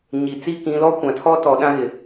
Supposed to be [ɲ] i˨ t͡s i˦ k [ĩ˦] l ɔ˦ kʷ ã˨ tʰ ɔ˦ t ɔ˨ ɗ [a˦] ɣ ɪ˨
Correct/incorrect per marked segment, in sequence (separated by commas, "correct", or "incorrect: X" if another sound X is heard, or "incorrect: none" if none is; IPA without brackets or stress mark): correct, incorrect: ĩ˨˦, incorrect: ã˦